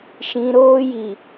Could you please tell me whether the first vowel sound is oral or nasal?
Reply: nasal